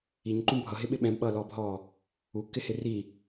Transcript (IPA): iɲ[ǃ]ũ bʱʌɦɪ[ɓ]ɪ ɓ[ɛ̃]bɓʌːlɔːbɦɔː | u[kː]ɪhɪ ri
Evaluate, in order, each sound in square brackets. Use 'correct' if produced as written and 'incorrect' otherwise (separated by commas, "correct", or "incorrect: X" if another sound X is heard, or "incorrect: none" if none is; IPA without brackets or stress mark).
correct, correct, correct, correct